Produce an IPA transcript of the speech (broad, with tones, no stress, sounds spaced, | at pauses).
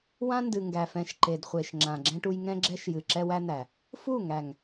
w ã˦ n d ɨ˨ ŋ ɡ æ˨ f ɛ̃˨ ʃ ǃ e˨ d χʷ e˨ ʃ ŋ͡ǁ ã˨ ɡ͡ǁ ɛ̃˦ ʈ u˦ j ŋ ɛ̃˦ ɡ͡ǁ ɛ˦ ʃ j ɨ˨ ǁ ɛ˦ w æ˦ n̪ æ˨ | f u˦˨ ŋ æ˨ ŋ